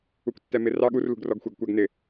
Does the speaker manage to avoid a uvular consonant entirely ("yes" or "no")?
yes